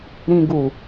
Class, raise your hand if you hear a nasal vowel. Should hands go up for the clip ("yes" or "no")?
yes